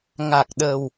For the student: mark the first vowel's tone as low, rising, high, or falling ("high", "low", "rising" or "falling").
low